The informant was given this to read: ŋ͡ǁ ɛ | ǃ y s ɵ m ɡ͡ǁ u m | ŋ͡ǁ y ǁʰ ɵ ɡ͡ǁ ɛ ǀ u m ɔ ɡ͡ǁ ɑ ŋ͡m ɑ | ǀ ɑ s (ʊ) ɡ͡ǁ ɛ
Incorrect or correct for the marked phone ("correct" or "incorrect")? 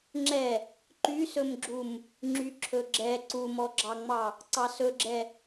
incorrect